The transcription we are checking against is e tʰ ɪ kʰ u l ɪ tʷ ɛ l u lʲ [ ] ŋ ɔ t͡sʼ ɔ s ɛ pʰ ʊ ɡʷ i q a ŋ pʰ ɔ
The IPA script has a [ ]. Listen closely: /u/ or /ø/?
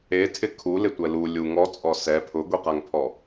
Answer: u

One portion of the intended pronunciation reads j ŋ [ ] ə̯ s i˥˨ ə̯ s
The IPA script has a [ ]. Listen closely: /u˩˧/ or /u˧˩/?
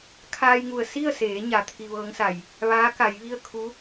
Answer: u˧˩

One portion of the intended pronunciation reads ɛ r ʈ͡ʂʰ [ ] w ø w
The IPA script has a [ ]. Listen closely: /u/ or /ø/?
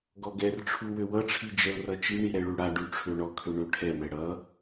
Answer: u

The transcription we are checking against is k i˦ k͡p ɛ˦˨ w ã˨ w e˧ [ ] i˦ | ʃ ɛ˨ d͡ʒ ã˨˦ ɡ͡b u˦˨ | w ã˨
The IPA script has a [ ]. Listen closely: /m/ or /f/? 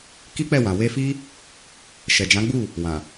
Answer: f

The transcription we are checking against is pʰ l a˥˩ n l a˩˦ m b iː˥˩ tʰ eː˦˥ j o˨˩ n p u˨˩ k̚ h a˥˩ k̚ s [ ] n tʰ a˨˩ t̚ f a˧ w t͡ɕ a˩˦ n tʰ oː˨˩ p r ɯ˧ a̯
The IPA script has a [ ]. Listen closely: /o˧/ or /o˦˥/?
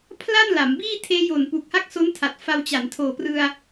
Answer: o˦˥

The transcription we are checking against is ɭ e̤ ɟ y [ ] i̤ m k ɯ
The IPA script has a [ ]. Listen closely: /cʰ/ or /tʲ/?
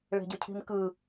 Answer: cʰ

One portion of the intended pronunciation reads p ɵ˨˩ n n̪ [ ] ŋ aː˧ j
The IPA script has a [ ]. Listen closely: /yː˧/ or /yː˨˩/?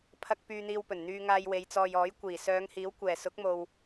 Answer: yː˧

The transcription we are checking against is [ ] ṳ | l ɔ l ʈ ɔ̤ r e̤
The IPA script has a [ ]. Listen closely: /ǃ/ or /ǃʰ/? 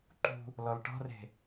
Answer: ǃ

